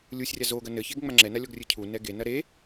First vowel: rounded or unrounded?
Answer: rounded